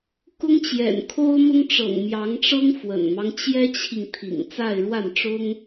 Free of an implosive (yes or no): yes